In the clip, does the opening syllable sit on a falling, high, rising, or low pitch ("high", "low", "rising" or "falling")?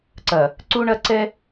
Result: low